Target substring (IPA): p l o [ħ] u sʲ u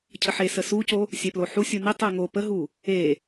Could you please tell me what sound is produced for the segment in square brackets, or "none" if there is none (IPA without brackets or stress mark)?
ħ